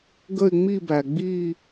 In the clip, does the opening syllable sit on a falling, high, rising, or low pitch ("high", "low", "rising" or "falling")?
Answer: falling